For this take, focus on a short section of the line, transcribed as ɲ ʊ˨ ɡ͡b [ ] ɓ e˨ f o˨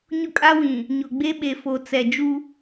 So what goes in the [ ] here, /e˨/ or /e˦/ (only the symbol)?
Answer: e˦